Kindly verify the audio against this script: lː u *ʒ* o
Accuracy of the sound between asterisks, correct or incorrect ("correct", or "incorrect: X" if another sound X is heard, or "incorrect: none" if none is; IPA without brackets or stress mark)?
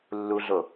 incorrect: ɮ